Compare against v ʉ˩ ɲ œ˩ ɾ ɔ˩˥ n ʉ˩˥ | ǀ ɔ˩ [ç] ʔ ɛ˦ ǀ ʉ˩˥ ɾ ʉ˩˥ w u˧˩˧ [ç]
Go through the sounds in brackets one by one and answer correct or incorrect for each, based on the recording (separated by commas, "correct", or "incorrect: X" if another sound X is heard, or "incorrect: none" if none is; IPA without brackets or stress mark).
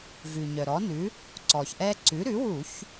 correct, correct